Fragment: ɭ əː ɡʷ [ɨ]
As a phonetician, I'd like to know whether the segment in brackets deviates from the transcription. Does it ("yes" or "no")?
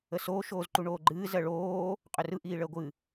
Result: no